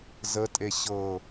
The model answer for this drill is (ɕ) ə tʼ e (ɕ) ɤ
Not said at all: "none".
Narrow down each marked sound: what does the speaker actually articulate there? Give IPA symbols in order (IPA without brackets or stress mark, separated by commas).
z, ɕ